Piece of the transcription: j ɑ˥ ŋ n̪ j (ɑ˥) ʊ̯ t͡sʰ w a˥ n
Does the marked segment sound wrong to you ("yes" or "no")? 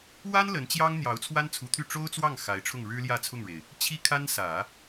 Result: yes